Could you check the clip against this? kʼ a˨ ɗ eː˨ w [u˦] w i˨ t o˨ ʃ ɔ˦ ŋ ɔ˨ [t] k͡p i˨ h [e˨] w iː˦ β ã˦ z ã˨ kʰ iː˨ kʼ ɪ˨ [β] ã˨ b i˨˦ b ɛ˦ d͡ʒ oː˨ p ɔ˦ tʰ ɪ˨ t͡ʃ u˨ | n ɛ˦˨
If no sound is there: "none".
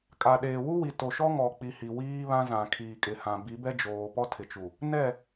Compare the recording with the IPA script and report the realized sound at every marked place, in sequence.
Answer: u˦, none, i˨, h

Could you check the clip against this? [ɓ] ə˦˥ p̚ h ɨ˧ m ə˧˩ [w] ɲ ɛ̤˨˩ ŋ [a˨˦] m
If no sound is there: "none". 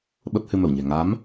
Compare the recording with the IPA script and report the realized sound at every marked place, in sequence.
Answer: ɓ, w, a˨˦

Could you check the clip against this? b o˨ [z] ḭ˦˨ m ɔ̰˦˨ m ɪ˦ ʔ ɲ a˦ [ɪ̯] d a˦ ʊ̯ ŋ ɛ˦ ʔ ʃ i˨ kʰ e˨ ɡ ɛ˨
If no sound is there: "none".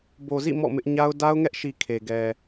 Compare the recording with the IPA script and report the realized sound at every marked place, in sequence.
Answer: z, ʊ̯

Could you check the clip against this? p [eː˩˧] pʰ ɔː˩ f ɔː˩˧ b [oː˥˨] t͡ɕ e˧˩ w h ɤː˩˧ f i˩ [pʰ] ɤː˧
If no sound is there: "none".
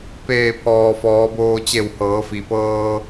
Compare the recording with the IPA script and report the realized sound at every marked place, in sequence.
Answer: eː˧˩, oː˧, p

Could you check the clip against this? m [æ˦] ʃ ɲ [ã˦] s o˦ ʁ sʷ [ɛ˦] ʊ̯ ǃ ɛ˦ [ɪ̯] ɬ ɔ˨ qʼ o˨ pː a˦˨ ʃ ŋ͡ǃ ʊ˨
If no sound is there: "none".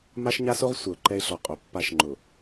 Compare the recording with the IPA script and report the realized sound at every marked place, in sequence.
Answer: a˦, a˦, ɛ˨, ɪ̯

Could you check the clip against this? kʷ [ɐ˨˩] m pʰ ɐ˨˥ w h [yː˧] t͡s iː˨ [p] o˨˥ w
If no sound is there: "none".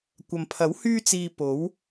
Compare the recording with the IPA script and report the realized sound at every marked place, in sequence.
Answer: ɐ˨, yː˧, p

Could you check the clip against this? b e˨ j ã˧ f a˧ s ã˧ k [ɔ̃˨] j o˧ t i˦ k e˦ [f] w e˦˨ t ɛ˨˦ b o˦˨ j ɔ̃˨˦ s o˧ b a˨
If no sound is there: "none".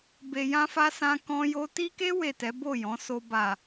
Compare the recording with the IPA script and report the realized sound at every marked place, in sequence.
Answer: ɔ̃˧, none

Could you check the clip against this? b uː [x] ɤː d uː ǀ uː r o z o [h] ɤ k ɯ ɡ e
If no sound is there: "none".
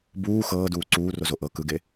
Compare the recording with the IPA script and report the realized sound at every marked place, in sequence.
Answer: x, ʔ

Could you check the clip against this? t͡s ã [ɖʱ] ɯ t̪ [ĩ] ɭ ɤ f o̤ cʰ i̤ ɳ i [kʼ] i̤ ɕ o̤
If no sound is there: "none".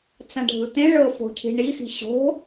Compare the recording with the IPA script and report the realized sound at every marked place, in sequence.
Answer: ɖʱ, ẽ, x

